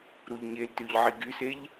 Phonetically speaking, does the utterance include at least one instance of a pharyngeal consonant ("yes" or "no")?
yes